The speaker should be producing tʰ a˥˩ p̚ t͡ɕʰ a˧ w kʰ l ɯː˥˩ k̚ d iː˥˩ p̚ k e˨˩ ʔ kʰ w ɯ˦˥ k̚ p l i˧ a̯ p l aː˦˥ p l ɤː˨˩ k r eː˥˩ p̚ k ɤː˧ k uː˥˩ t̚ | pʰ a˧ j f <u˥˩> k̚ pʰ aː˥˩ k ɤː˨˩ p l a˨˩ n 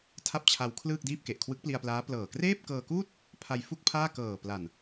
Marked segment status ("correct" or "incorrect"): correct